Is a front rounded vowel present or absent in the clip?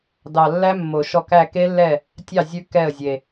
absent